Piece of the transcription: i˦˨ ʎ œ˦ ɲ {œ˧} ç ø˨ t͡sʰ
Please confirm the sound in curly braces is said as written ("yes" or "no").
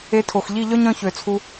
no